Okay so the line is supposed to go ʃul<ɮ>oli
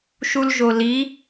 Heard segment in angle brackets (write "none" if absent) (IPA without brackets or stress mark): ʒ